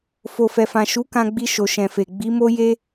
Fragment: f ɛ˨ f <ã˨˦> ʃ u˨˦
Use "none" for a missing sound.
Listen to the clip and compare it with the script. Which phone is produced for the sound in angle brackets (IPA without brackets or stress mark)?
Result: ã˨